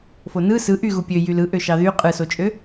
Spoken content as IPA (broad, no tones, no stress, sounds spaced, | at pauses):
f o n ɯ s ɯ ʔ y ɣ u pʲ ø j y l ɯ ʔ ø ʃ ɑ ð y qʼ ɯ s o t͡ʃʼ ø